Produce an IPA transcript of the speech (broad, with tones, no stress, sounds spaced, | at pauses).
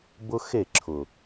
b ʊ˦ x e˦˨ ǁʰ ʊ˨